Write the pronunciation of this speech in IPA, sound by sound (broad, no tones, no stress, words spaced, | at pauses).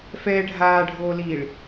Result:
fɛːɖʱaːɖʱoːliːɭ